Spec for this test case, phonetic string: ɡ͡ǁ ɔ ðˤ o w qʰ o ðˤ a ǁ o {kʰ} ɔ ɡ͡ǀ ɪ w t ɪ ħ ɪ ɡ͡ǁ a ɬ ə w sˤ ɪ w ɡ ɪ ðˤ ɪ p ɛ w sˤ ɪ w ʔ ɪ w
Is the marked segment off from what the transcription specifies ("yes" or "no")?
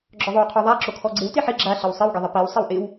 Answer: no